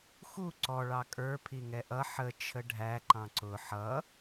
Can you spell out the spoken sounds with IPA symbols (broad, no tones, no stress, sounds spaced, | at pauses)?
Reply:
x u ǀ ɔ ɭ ɑ kʼ ə˞ pʰ i ŋ ɛ ʔ ʌ ħ ə t͡ʃʰ ə ɖʱ æ ǃ ɑ̃ ǀ ʊ ħ ʌ